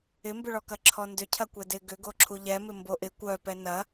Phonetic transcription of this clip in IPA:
ɪmbʏɭɔkɐ ǁʰɔndʏ cʰɐkʷɛdɪ ɡʏɡo ǁʰuʎɛmɪ mboʔɪ kʷœpɛ nɐ

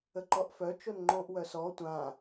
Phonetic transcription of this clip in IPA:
əǃɔʔfœ t͡ʃonŋ͡ǃõʔ wœsɔ tʷã

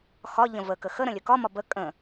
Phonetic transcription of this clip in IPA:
xɒ ʎə̃və kəxə ɾə̃lʲɵkɒ mɒbə kʼə̃

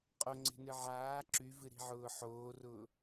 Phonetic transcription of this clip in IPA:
qʼoŋ͡ǀe̤nɨ ʕaː ǁyvɨɾi̤ʕʊː ħoːrʊː

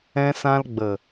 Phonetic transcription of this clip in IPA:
ɛ̃˧sã˧lɡ͡bə˨

